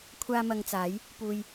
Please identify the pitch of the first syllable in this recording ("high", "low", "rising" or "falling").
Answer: high